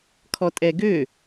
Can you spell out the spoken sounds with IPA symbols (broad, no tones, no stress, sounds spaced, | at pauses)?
kʰ ɔ tʼ ɛ ɡ ø